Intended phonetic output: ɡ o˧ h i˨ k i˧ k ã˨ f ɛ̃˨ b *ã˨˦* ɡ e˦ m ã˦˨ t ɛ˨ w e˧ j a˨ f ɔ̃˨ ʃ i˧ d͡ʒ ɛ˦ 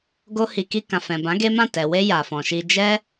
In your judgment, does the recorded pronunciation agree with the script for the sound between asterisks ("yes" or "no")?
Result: yes